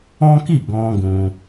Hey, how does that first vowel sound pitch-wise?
high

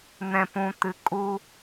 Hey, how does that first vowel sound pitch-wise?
low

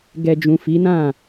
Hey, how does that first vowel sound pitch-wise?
low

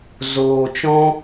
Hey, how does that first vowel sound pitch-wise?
low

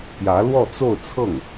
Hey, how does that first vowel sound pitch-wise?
rising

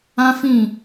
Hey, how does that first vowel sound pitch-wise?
high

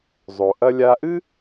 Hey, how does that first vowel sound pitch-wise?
low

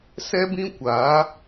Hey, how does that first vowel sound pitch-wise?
high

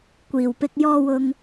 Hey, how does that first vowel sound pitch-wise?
low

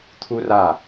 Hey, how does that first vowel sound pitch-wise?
high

